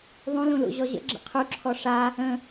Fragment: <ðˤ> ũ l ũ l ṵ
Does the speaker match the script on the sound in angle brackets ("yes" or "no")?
yes